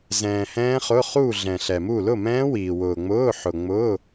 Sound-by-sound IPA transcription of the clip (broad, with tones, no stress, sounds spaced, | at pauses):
z ɛ̃ː˨ h ɛ̃ː˦˥ χ ʊ˧˥˧ χ u˥˨ ɮ ɛ̃˨ ɬ ɛ˨ m u˥˨ l ʊ˥˨ m ɛ̃ː˦˥ w iː˨ w ʊː˨ ŋ͡m ʊː˧˥˧ ħ ʊ˨ ŋ͡m ʊː˧˥˧